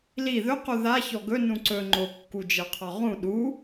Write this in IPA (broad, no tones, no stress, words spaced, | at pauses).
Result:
li ðɵqu ðaçɔ ɡɵnũ ǀɵ ŋ͡ǃokːud͡ʒɜqʰɔ ʁũ ɗu